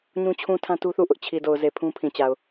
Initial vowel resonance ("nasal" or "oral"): nasal